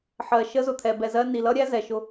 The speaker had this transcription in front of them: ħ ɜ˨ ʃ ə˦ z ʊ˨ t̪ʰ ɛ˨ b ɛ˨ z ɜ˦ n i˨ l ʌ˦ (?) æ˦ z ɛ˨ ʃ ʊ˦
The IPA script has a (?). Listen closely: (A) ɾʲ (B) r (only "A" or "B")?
A